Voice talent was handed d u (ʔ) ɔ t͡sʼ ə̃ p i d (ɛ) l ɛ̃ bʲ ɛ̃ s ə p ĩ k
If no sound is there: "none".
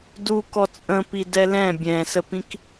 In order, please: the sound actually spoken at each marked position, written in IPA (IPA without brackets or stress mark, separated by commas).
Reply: k, ɛ